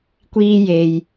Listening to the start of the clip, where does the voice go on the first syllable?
high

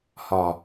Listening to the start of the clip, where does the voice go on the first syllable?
low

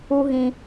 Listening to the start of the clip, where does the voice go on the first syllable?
high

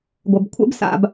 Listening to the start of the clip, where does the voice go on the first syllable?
low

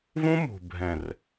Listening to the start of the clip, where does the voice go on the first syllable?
high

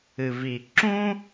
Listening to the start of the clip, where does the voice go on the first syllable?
low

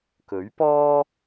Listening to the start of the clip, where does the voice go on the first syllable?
rising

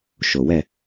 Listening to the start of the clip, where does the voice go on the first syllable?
low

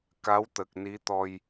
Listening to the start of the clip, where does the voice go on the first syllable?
rising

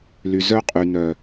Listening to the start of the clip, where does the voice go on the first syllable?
low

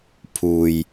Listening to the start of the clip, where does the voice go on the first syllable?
low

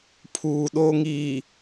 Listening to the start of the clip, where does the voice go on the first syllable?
low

